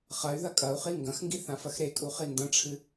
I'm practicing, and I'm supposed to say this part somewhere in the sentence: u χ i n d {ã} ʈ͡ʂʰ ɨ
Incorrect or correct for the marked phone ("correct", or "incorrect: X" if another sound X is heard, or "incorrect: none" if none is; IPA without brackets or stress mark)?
incorrect: ɐ̃